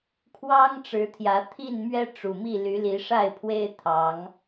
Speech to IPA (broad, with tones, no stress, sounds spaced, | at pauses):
kʰ w ɑ˦ ŋ ʈ͡ʂ ɻ̩˨˦ t̪ʰ j ä˨˦ t̪ʰ i˥˨ n m ɥ ɛ˦ ʈ͡ʂ u˨˩ m i˥˨ l y˨˦ l i˨˦ ʂ a˥˨ ɪ̯ pʰ w e˦ ɪ̯ t̪ʰ ɑ˨˦ ŋ